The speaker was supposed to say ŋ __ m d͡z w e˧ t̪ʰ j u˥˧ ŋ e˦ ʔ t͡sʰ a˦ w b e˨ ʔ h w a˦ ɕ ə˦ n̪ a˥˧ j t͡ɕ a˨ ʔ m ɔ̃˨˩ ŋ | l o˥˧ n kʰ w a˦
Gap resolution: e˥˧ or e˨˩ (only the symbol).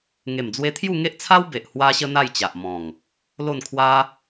e˨˩